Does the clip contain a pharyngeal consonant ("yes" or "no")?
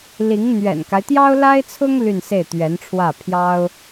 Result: no